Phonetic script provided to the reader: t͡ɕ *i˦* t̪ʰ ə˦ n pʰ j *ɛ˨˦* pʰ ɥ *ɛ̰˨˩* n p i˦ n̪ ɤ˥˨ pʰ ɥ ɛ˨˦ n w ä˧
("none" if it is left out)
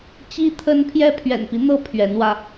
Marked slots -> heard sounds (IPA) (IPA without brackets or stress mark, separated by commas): i˦, ɛ˦, ɛ̰˨˩